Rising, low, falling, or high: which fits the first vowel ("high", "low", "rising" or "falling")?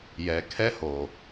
low